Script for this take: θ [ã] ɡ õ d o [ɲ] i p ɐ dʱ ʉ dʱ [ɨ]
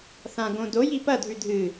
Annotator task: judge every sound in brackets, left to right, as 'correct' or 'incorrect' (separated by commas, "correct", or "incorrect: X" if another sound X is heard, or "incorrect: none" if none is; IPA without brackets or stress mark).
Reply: correct, incorrect: j, correct